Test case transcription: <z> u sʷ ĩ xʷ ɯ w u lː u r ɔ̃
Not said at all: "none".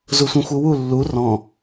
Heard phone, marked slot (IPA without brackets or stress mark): z